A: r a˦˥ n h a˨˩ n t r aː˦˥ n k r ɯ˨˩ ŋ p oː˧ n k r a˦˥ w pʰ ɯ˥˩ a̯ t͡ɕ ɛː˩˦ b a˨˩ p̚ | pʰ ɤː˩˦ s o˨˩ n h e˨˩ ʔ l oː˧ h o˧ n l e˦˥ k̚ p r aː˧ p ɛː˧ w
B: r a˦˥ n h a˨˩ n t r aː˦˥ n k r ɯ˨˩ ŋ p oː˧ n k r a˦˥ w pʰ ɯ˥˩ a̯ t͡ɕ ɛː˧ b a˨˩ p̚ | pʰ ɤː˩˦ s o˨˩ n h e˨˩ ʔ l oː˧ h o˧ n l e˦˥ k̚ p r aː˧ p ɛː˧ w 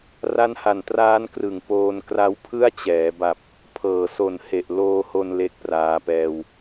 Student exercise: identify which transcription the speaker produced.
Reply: A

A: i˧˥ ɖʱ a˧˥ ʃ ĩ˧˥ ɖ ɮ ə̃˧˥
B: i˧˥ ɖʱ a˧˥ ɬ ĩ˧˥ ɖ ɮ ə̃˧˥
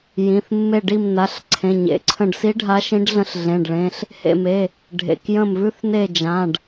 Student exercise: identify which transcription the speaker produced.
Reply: A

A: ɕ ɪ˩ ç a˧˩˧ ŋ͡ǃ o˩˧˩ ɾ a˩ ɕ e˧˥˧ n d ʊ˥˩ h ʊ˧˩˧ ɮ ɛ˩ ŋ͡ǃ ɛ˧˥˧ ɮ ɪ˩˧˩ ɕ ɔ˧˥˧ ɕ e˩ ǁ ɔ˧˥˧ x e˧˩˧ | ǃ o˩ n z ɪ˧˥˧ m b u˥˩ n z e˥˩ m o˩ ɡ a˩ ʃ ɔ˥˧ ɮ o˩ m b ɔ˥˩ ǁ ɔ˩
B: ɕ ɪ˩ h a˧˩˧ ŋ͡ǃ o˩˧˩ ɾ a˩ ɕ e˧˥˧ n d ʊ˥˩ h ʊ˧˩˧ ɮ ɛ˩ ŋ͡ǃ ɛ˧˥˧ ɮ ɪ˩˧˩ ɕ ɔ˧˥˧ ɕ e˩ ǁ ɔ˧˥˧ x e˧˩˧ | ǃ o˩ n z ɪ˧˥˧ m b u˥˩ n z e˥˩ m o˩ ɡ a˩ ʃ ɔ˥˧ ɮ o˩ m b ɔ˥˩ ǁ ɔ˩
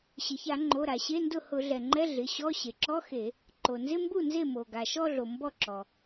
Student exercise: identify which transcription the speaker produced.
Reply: A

